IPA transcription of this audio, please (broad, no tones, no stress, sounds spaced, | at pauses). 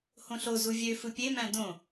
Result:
h õ ɬ o z u vʲ ø f ɯ pʲ e m æ̃ d õ